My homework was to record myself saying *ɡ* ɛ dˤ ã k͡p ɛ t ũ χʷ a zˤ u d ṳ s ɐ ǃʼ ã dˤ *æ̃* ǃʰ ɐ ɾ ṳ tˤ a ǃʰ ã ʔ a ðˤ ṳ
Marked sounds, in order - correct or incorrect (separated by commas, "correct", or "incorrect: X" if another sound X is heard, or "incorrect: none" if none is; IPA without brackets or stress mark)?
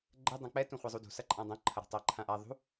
incorrect: ɡ͡ǃ, incorrect: ɐ̃